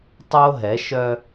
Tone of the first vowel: high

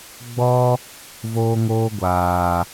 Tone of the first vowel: high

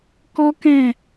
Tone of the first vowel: high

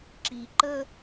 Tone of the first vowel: low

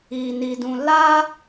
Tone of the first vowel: low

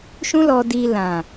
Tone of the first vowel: high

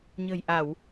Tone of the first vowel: low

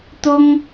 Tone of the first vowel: high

